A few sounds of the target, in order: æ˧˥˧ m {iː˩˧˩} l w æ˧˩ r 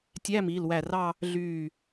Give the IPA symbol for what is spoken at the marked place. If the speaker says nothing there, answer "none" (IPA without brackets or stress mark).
iː˩˧˩